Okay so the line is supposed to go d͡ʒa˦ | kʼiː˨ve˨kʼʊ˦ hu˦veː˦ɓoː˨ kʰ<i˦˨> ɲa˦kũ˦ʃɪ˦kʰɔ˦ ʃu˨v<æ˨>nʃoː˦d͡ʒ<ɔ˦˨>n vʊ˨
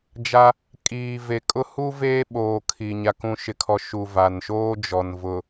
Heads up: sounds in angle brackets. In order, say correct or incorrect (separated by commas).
incorrect, incorrect, incorrect